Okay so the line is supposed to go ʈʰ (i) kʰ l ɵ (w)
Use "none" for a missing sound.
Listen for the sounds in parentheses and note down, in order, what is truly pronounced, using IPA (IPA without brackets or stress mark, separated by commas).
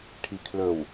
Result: i, w